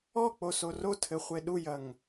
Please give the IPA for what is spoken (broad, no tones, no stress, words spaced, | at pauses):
ɔk͡poso rotʰɘχʷe ɗujɐŋ